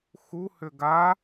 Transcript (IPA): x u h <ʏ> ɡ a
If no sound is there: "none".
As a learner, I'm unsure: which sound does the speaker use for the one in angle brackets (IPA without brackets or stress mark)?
ʏ